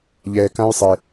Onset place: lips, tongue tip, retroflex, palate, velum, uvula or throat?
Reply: palate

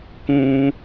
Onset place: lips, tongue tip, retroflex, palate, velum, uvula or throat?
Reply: velum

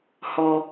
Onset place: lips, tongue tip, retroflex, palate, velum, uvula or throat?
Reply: throat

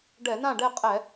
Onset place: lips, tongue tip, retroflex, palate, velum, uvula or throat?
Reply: retroflex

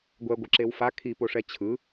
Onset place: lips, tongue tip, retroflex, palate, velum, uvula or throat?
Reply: velum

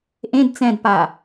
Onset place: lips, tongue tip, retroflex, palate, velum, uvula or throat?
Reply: throat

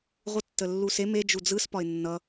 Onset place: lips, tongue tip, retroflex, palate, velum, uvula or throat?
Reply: uvula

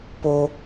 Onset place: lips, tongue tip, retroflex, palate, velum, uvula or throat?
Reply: lips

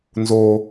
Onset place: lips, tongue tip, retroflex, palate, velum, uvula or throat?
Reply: tongue tip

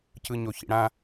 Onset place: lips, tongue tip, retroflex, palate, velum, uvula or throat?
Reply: palate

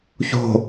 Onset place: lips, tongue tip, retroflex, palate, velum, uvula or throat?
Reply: palate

